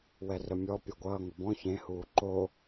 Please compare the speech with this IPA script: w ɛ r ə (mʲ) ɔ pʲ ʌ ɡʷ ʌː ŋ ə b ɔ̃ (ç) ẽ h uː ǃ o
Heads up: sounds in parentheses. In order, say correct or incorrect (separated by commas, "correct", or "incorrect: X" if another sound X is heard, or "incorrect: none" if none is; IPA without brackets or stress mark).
correct, correct